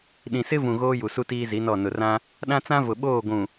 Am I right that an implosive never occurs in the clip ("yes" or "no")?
no